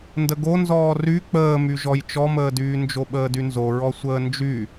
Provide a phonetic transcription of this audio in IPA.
n d ə ɡ o n z ɔː r y k͡p əː m y ʒ ɔ j t͡ʃ ɔ m əː d yː n d͡ʒ o ɓ əː d y n z o ɹ ɔ sʷ əː n d͡ʒ y

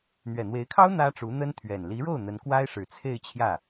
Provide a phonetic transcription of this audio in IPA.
n̪ ɥ ɛ˨˩ n̪ w e˧˥ ɪ̯ kʰ ɑ˥ ʊ̯ n̪ ä˥ ʈ͡ʂ u˧˥ n̪ ə˥ n t̪ʰ ɥ ɛ˨˩ n l i˧˥ ɻ o˥˩ ʊ̯ n̪ ə˧˥ n k w a˥ ɪ̯ ʂ ɻ̩˨˩ t͡sʰ e˥˧ ɪ̯ t͡ɕʰ j ä˥˩

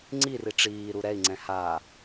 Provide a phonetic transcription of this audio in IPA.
ŋ͡ǀ i r i ʈ͡ʂ iː ɾ u ɾ ɛ i̯ ŋ͡ǀ ɛ̃ h a

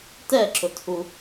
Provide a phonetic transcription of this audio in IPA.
t ɛ ǁ ʊ t h u

